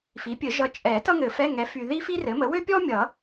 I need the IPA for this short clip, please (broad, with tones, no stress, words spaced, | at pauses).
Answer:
fi˩˥pʲɘ˨˩˦ ʒʌ˨t͡ʃʼɛ˨˩˦ tʌ˥ŋɘ˨˩˦fɛ˧˥˧ ŋɛ˩˥fy˨ ði˥fi˥rɘ˩˥mə˩˥ wø˥pʲɔ˥mʲʌ˨˩˦